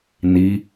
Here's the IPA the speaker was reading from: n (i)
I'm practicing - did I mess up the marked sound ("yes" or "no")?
no